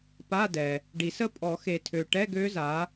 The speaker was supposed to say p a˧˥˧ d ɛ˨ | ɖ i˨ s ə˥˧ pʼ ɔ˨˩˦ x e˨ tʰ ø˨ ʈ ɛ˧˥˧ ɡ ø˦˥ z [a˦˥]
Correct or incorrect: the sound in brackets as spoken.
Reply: incorrect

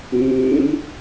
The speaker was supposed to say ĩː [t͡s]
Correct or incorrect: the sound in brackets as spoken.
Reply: incorrect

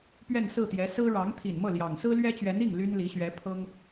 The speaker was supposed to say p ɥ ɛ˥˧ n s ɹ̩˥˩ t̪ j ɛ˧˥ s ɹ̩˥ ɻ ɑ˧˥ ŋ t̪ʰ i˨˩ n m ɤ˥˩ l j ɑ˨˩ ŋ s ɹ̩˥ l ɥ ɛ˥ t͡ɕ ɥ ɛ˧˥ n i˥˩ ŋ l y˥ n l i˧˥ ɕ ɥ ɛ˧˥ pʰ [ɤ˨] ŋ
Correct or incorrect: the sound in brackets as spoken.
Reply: incorrect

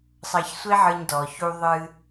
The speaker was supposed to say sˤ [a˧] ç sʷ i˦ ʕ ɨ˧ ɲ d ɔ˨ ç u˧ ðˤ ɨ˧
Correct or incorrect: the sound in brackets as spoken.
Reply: incorrect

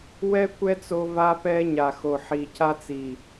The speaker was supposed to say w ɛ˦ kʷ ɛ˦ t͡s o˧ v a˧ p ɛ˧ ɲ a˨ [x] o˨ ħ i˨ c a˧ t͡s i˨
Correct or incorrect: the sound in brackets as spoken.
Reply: correct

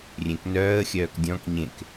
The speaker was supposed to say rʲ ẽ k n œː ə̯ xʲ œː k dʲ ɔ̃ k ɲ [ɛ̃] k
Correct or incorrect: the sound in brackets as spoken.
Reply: incorrect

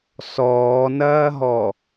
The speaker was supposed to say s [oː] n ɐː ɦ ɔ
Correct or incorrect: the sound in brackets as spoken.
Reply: incorrect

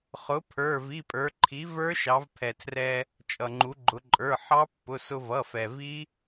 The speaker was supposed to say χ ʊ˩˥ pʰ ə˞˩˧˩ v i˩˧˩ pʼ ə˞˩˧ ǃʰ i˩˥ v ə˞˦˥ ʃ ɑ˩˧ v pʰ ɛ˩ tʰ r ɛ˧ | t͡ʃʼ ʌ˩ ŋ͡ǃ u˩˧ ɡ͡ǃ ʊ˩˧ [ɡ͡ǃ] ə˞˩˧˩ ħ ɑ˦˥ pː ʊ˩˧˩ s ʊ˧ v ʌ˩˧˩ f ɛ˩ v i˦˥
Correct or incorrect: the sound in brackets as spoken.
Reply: incorrect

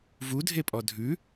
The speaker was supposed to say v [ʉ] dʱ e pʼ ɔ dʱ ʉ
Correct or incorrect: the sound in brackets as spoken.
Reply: incorrect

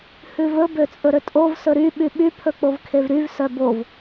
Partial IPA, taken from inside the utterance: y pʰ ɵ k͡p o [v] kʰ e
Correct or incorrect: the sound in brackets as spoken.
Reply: correct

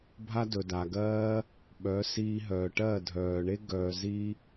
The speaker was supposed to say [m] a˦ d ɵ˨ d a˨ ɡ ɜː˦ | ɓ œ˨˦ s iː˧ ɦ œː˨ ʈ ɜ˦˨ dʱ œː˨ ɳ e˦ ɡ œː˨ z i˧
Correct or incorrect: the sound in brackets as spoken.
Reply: incorrect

